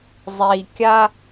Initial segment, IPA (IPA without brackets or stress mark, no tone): zˤ